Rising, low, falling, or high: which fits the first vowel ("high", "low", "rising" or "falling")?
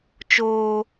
high